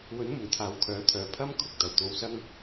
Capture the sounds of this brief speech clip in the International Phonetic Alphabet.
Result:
w ɵ˨˥ n m ʊ˨˩ ŋ t̪ʰ aː˨ w kʰ œː˨˥ t̪ʰ œː˨ pʰ ɐ˥ m kʰ ʊ˨ k̚ t̪ ɐ˨˩ w t̪ o˧ w s ɐ˥ ŋ

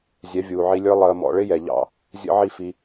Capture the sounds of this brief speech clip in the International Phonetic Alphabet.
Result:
zʲ ɛ˨˦ vʲ uː˨ ʕ i˧ lʲ ə˞˦ lˠ əː˧ m ɔ̰˧ ɭ ɪ˦ j ɛ˨ ʎ ɑ̰˦˨ | zʲ ə̰˦ ʕ i˦ f i˧

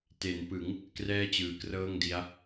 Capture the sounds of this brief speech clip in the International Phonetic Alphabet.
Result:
t e˩˦ n p ɯ˩˦ ŋ | k r ɛː˥˩ t͡ɕ ɯː˩˦ k r ɤː˥˩ ŋ d i˦˥ a̯

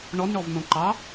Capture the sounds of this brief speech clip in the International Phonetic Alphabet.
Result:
ɳ ɔ n ɳ ɔ v n õ ǃ ɑ

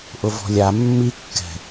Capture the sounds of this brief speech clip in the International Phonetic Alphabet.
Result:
ʔ ʊ v ɔ̤ lʲ a mː i kː ɛ̤

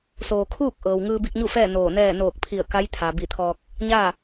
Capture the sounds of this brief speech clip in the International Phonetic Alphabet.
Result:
s oː˩ kʰ uː˥˨ k̚ ʔ ɤː˩ w ŋ ɯː˧ b i˧ k̚ ɲ u˥˨ f ɛː˥˨ n oː˧˩ n ɛː˥˨ n oː˧˩ k̚ pʰ i˧˩ ə̯ k a˧˥ j t̪ʰ a˩ b i˧˩ t̪ʰ ɔː˧ k̚ | ɲ aː˥˨

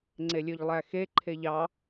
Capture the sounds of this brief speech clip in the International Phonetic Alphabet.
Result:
ŋ͡ǀ e lʲ ø ʎ lˠ æ x e ǃʰ e ʎ ɑ

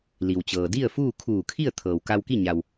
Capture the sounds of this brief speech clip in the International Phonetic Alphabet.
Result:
l i˩ w t͡ɕ ɤː˩ d i˥˨ ə̯ f uː˥˨ kʰ uː˧˩ kʰ i˥˨ ə̯ t̪ʰ ɤː˩ w k a˧ w k i˥˨ ɲ a˩ w

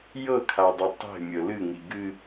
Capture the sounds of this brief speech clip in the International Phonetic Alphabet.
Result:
j ɤ kʰ a dˤ ɨ tˤ e̤ mʲ ɤ l ɨ ŋ i ɡ ɨ

